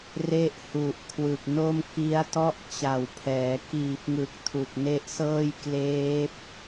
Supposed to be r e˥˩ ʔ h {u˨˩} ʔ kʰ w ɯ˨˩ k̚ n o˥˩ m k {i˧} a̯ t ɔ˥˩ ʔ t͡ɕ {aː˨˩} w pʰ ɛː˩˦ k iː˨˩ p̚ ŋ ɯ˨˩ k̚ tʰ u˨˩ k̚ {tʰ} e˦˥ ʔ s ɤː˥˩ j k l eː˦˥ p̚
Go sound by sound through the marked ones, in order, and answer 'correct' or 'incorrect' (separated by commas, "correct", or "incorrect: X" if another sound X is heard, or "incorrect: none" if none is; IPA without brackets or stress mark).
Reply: correct, incorrect: i˦˥, incorrect: a˨˩, incorrect: n